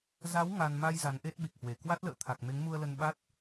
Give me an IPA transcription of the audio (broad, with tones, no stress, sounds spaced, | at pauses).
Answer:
z a˨˦ w ŋ a˧ n m a˧ j z a˨˦ n ʔ e˦˥ t̚ ɓ i˨˩ k̚ h w e˧˩ k w a˦˥ t̚ l ə̰ː˧˨ t̪ʰ a˨˩ k̚ m e˨˦ ŋ m u˧ ə̯ l ə˧ n ɓ a˦˥ t̚